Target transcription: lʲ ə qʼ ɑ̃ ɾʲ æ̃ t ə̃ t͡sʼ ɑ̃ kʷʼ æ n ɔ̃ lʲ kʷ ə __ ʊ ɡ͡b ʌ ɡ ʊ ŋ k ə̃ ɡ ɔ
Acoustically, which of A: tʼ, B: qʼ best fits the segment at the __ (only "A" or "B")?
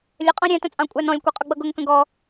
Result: B